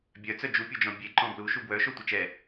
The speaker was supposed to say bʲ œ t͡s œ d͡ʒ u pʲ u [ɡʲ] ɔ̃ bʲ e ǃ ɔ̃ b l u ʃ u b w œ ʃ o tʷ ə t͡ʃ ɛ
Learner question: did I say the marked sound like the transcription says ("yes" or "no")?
no